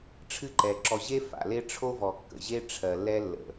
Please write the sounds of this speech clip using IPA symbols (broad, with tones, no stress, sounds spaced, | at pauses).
ʈ͡ʂʰ ɨ˦ ǃ ɛ˨ ǁ ɔ˨ ʑ e˦ f a̰˨ l e˦ ʈ͡ʂʰ o˦ v ɔ˨ kː ə̰˨ ʑ e˦ ʈ͡ʂʰ ɜ˨ lː ɛ˦ lː ə̰˨